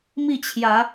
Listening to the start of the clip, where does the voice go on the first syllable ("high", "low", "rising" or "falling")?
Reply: falling